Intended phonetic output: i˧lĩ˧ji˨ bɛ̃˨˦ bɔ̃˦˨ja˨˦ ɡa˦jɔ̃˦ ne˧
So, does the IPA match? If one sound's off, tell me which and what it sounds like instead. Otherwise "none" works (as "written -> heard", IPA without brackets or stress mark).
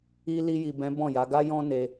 ĩ˧ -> i˧